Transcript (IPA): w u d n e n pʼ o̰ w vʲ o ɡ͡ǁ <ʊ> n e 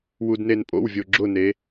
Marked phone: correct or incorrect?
correct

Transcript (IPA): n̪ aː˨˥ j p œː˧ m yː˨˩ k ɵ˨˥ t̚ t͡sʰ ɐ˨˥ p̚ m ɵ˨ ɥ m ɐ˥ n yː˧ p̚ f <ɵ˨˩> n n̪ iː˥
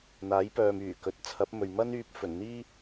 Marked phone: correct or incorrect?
correct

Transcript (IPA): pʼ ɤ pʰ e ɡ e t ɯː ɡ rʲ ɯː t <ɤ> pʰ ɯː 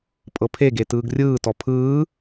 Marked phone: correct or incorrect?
incorrect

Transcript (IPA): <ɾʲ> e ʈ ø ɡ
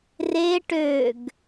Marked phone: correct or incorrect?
incorrect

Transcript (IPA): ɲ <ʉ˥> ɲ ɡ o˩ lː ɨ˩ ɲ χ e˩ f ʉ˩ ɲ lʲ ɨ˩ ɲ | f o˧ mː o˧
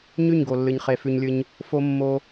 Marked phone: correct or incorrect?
incorrect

